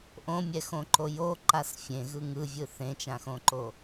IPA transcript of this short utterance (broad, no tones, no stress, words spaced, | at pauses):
ʔõmʲɛxõǃo joǃas fʲẽɣɯ ŋɯvʲɯ θẽt͡ʃãxõǃo